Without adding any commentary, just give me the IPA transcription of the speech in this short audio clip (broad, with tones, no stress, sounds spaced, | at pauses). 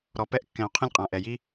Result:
ɾ ɔ˩ p ɛ˧ ʔ kː ɛ̃˩ u̯ qʰ ɛ̃˧ lʲ qʼ ã˩ ʔ ɛ˩ j i˧